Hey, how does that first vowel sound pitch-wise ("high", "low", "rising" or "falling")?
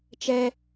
high